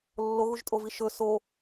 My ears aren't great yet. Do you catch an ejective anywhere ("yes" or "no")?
yes